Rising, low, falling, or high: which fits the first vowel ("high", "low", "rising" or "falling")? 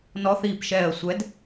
rising